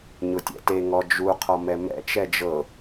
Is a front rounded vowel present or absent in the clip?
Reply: absent